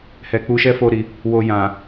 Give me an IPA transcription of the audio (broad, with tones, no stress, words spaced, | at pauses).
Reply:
hɛ˨k͡pu˧ʃɛ˦ fo˦ɾi˧ | wo˨ jã˨